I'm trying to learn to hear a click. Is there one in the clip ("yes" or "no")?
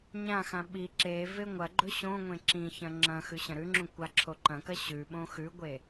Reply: yes